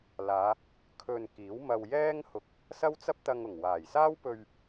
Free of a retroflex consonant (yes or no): yes